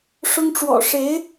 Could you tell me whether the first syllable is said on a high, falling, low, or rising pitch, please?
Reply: high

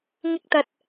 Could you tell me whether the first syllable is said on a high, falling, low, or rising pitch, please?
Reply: high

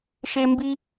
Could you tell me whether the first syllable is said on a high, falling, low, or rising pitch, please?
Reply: high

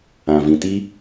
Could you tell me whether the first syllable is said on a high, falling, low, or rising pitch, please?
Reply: low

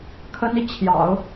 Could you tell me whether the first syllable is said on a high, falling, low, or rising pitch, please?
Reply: high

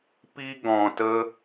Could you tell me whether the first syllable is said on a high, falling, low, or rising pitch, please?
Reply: high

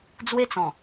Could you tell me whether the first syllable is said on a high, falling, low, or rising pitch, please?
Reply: high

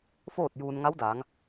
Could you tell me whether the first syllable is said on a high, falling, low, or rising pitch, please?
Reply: falling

